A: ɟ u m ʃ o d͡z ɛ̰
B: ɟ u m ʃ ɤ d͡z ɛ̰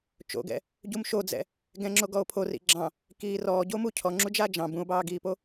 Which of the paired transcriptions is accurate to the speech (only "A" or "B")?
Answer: A